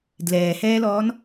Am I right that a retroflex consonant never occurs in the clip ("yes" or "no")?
yes